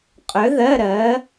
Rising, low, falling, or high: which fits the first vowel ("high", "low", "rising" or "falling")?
rising